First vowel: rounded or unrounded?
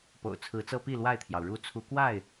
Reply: rounded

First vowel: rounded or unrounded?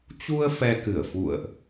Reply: rounded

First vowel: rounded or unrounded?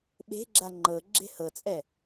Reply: unrounded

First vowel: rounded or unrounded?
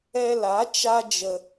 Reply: unrounded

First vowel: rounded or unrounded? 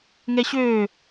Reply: unrounded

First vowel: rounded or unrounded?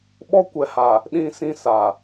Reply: rounded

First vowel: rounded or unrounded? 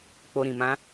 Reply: rounded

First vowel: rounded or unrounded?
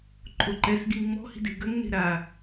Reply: rounded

